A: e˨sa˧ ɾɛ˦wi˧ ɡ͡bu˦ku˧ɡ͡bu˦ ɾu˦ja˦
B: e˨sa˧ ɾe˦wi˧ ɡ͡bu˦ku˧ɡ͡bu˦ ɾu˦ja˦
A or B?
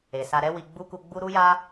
A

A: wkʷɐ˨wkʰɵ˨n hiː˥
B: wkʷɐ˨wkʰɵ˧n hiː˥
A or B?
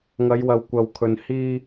A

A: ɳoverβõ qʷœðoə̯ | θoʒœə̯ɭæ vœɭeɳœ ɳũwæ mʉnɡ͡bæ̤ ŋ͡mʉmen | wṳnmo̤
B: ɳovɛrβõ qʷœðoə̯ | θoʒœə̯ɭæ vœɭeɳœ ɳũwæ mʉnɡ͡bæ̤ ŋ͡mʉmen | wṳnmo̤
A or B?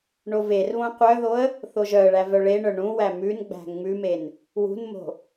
A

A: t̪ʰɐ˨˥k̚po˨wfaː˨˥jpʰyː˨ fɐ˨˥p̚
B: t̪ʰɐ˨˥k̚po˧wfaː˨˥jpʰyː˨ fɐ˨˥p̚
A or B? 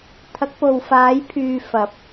A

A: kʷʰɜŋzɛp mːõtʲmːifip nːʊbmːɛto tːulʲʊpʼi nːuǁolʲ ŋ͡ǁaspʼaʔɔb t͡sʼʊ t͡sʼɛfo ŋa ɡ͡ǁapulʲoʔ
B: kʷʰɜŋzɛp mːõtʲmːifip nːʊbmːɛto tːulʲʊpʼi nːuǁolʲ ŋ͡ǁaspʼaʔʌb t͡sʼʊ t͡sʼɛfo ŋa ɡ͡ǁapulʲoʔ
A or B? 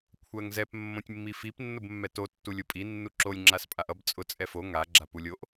B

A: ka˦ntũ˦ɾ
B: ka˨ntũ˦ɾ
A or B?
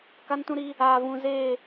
A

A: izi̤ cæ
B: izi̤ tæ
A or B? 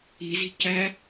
A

